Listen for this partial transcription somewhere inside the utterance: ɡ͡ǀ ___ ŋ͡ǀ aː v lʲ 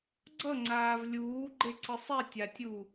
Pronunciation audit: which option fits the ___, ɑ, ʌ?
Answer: ʌ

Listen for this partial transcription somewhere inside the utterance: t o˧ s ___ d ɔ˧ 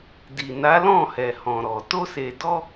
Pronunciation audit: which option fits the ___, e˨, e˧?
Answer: e˨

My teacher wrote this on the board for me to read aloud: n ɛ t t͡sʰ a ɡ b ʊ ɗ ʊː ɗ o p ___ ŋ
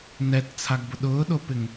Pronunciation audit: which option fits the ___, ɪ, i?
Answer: ɪ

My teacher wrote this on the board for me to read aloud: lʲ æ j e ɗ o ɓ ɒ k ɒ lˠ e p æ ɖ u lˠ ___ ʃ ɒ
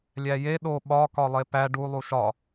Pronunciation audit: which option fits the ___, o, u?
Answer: u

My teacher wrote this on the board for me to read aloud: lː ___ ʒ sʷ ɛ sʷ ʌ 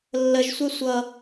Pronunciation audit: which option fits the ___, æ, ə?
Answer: ə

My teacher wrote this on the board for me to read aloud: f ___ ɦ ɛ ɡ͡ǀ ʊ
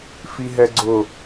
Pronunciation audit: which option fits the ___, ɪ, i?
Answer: i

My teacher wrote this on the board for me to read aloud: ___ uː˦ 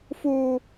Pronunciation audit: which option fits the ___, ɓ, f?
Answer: f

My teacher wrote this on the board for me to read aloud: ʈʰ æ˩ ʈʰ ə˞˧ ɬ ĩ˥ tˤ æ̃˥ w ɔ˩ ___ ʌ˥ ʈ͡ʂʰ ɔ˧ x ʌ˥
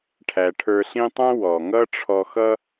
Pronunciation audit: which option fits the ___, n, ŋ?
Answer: ŋ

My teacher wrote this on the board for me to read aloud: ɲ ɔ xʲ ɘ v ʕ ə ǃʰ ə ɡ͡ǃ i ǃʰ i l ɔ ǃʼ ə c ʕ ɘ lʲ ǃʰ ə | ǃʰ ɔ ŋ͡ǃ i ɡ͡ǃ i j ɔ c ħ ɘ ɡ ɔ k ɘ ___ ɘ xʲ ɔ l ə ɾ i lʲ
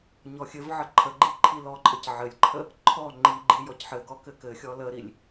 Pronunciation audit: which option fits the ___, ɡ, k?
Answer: k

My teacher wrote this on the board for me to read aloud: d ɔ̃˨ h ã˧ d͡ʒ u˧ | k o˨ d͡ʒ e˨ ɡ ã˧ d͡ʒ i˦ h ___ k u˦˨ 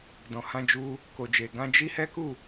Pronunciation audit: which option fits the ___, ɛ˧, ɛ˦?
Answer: ɛ˦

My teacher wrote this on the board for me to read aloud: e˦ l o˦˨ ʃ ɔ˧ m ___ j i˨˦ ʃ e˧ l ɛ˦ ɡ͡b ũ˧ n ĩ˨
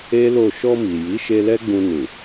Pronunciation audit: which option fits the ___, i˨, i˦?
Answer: i˨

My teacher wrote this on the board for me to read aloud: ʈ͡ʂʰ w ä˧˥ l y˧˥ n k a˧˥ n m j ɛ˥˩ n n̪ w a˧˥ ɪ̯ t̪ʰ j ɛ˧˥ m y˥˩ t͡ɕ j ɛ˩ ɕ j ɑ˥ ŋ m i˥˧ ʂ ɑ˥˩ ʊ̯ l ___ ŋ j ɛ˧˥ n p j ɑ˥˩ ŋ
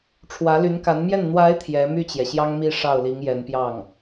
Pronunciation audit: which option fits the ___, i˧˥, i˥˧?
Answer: i˧˥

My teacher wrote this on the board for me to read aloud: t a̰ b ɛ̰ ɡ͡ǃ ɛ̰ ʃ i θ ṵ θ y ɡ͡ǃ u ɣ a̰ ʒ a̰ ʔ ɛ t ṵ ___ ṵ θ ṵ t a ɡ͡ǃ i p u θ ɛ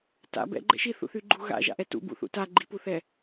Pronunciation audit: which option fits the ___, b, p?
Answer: b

